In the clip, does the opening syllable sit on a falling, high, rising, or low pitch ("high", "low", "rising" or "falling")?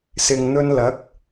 low